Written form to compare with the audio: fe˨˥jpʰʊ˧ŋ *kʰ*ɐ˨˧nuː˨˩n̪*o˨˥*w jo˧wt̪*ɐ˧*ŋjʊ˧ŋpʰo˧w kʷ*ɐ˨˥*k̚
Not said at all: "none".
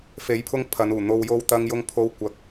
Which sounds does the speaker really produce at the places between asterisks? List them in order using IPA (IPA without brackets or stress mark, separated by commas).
pʰ, o˧, ɐ˧, ɐ˧